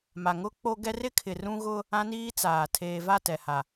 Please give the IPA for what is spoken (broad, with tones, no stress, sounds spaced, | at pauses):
m a˨ ŋ ʊ˦ k͡p o˦ ɡ ɛ˦ r ɪ˦ kʰ ɪ˨ r ũ˦ ɣ ʊ˦ | ã˦ n iː˦ t͡s aː˨ tʰ eː˨ v a˦˨ t ɛ˨ h a˨